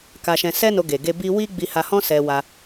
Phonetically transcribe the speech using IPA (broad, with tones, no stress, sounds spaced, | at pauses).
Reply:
k a˧ ʃ ɛ̃˧ s ɛ˦ n o˧ ɡ e˨ ɡ e˧ b i˦ w i˦ ɡ͡b i˧ h a˧ h ɔ̃˦ s ɛ˧ w a˧